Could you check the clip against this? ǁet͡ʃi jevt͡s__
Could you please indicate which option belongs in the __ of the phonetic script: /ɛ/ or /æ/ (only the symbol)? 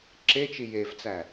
æ